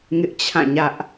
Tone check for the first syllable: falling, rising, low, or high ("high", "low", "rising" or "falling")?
high